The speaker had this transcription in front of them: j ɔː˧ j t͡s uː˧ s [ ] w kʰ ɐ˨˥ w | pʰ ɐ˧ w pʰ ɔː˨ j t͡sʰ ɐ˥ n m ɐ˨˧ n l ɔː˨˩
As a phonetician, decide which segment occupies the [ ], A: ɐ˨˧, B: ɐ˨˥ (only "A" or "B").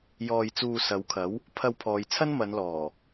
A